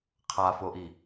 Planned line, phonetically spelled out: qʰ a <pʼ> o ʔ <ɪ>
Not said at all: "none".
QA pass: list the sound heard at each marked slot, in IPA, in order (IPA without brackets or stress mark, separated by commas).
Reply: f, i